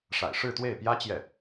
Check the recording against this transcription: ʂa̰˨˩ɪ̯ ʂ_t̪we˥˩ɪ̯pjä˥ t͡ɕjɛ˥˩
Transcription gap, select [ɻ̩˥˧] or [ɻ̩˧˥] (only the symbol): ɻ̩˥˧